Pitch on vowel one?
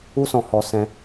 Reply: high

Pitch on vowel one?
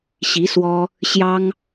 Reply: rising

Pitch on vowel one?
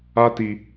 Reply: high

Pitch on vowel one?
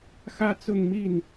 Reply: high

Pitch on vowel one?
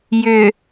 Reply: low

